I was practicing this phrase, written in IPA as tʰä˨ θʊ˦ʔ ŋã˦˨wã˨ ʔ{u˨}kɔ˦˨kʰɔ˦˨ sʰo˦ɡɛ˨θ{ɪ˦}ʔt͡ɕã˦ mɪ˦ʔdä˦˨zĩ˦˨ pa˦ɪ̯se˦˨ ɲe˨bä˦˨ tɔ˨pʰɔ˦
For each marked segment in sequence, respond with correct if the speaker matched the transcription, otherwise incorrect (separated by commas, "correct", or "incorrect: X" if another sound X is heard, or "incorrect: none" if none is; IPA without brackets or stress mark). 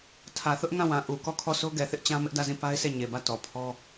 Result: correct, correct